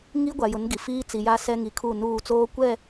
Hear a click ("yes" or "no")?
no